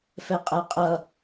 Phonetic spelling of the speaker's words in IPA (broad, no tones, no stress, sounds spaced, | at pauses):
f ɛ qʼ ɜ qʼ ʌ